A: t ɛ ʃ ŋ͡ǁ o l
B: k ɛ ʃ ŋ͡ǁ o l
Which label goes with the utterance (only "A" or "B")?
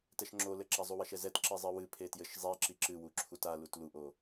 A